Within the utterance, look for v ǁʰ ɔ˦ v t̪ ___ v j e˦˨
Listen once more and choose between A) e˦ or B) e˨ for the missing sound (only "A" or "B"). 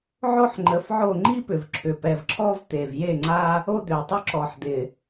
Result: B